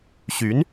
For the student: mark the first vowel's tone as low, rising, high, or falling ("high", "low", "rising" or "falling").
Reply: rising